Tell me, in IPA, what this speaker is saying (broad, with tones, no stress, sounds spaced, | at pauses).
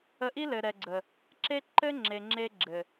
ə˧ ʔ i˦ l ɘ˨ ɾ ɛ˨ ɡ͡ǀ ə˨ | ǁ e˦ ǃ ɘ˦ ŋ͡ǁ e˨ ŋ͡ǁ e˧ ɡ͡ǁ ɘ˨